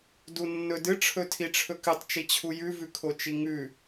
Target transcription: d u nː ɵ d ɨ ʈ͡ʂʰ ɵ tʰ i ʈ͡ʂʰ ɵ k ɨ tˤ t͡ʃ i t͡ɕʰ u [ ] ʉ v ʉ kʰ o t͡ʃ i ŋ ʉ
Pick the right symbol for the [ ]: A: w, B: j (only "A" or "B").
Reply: B